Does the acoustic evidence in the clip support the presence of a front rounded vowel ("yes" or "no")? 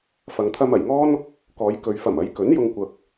no